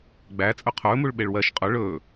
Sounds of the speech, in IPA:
ɡ͡bæ t͡sʼɵqʰɵːmuɭ ɓeɭwɜʃ qʼɵ ɭɵː

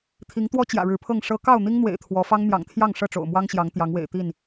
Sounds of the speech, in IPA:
t̪ʰi˨˦ŋt̪wɔ˦ t͡ɕjä̰˨˩ɻɻ̩˨˦pʰɤ˥˨ŋ ʂɤ˦ kɑ˥˨ʊ̯n̪i˦ŋn̪wḛ˨˩ɪ̯ t̪ʰwɔ˨˦ fɑ˦ŋn̪jɑ̰˨˩ŋt̪ʰjɑ˥˨ŋ ʂɤ˥˨ʈ͡ʂo̰˨˩ʊ̯mwɑ˦ŋɕjɑ˨˦ŋ t̪jɑ˨˦ŋwḛ˨˩ɪ̯t̪i˥˨n

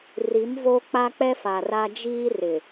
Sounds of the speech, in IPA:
ri˨˦mvo˦ k͡pa˦k͡pɛ˦fa˨ra˦ d͡ʒiː˦rɪ˨

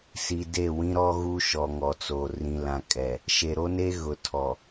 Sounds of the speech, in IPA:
si˨ de˦˨wĩ˦ ɾɔ˦ɣu˦ ʃɔ˨ŋɔ˨t͡so˨ rĩ˨lã˨kʼɛ˨ | ʃe˨ɾo˦ne˦ ɣʊ˨tʰɔ˨

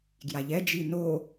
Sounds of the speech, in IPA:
ɡjaʎɛ d͡ʒino

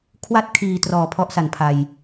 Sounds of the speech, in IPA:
kʰwa˥˩t̚kʰiː˨˩trɔː˨˩ pʰɔ˥˩ʔsa˨˩npʰa˧j

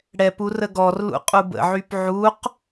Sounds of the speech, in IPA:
ɽɛpu rəɡɔrlṵ qʼubə̰ʕyp ʕuq

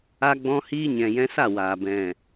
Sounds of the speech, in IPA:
a˧ɡ͡bɔ̃˧hiː˧ ɲɛ̃˨jɛ̃˧sa˦˨ waː˨ bɛ̃˨

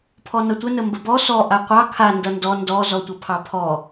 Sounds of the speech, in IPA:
pʰɔnʌtʷə nəmbəbɔ sɔ ʔaqʷɑ kʰa ndʌndɔ ndɔ zɔtʷʌpʰɑpʰɔ

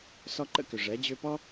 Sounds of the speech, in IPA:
sɔ˧ǃə̰˦ kʏ˨ʐɛ˨˦ d͡ʑʏː˧pɔ˦

